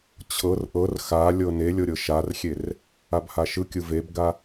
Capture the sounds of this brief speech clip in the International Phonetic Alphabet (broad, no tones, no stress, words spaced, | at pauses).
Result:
t͡ɕʰɤr ʔɤr xalʲɤ nelʲɤ ɾʲɤʃarxʲer | abhaʃɯkʲɯ vebɡa